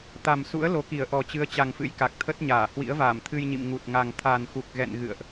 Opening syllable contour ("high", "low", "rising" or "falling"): low